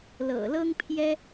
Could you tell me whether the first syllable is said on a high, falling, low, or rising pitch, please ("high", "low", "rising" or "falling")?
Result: low